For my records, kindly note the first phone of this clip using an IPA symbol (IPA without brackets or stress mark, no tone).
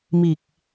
m